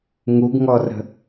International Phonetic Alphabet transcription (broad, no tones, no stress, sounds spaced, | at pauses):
ŋ u ɡ ŋ ɔ r ə̤